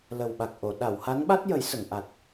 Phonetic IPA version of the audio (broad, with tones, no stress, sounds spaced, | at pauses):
l ə˨˩ w ɓ a˨˩ k̚ ʔ o˨˩˨ ɗ a˨˩˨ w h a˧˥ n ɓ a˦˥ t̚ j ə˨˩˦ j s ə˨˩˨ ŋ ʔ a˨˩ t̚